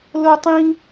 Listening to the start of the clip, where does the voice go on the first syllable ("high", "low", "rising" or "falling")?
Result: high